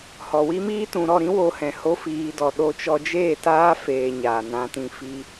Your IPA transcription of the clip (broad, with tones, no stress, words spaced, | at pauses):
hɔ˨wi˦miː˦ tũ˨ɾɔ˦˨ɾĩ˦ wo˦hɛ̃˧ ho˧fiː˨dɔ˨ ɗo˧t͡ʃɔ˧d͡ʒeː˦˨taː˦ feː˧ɲaː˨nã˧tĩ˧ fi˧